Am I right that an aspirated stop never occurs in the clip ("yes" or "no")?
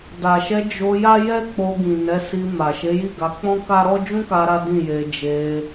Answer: yes